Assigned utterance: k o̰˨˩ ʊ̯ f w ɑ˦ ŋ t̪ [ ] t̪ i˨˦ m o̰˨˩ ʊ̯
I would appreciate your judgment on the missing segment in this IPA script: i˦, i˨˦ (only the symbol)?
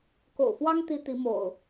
i˦